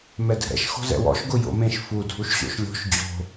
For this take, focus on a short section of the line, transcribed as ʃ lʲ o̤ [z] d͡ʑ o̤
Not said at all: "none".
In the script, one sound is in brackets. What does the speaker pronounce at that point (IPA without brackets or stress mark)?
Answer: ʃ